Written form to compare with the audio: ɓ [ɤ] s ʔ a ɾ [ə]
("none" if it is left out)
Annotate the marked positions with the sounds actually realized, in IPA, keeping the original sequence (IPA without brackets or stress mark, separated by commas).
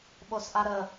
o, ə